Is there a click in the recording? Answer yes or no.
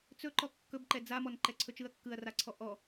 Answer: yes